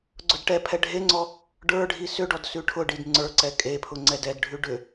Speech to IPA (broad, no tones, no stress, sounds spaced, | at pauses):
ɡ͡ǀ ʊ d ʈ ɛ pʰ ɛ ɖʱ e ŋ͡ǀ ɔ | ɖ ə˞ ɖʱ i s ʏ ɖ ɔ d s ʉ ʈʰ ʊ ɖ i d ŋ͡ǀ ə˞ ǀ ɛ kʼ e pʰ ʊ ŋ͡ǀ ɛ d ɛ d ɖʱ ʉ ɖ ʏ